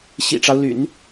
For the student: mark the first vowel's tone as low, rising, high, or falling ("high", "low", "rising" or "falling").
low